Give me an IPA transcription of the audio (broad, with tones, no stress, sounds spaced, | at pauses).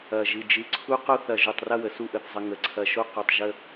ɐ˧˩ ʒ ɨ˧˩ d͡ʒ ɨ˧ ǀʰ u˥ q o˥ θ ɐ˧˩ ʒ u˧˩ tˤ r ɐ˥˧ w ə˩˧ s u˥˧ ʔ ə˧ θ zˤ ə˧ ŋ ə˩˧ ǀʰ ɐ˧˩ ʃ o˥˧ q o˧˩ tˤ ʒ ə˥˧